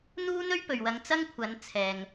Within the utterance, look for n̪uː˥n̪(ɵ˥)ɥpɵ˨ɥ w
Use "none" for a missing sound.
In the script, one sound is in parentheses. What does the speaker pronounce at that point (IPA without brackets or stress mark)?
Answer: ɵ˥